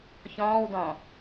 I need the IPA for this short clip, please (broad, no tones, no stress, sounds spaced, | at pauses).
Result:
ç ɔ̃ː w d ɔ̃